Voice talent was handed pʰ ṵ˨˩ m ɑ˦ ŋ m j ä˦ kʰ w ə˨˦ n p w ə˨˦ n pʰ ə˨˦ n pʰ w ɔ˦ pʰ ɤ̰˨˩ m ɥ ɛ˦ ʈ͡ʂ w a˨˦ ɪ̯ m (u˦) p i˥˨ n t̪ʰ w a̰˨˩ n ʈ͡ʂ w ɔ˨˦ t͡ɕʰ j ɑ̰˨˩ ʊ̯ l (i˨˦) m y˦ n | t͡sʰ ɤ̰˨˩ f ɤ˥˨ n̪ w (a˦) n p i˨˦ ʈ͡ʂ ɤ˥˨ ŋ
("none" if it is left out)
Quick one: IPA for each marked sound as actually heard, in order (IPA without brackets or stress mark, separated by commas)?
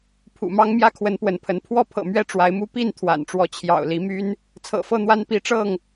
u˦, i˨˦, a˦